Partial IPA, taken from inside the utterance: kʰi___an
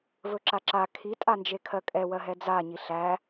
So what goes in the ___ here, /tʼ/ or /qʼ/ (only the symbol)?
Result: tʼ